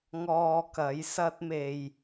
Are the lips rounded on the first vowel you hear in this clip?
yes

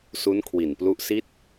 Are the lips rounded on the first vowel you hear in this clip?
yes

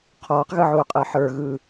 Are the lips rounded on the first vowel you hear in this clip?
yes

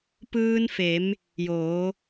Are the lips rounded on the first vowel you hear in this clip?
no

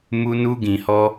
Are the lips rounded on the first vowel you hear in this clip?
yes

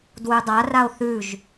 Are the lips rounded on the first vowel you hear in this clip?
yes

